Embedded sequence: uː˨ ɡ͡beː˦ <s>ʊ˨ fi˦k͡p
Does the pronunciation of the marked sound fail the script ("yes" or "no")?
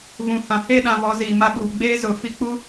yes